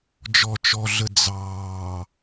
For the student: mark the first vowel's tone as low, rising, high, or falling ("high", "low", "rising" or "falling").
low